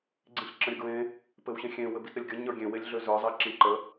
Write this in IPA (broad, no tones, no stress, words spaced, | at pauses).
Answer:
ɡ͡ǀĩɬǁə̃ɾʲəɡɹẽ | pɘwɕẽxʲẽ wɘbitɾɘlʲɡʲə ɲə˞ɡʲẽ welʲɮøzə˞ zˤiǁĩǃə